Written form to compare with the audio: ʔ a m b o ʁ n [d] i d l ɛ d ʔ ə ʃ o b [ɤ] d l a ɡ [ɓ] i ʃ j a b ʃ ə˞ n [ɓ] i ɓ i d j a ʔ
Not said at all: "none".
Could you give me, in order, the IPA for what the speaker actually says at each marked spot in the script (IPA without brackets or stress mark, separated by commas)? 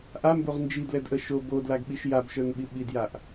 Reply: d͡ʒ, o, ɓ, ɓ